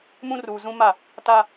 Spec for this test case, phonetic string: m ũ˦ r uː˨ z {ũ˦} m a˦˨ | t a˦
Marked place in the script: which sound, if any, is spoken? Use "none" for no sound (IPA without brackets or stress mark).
ũ˦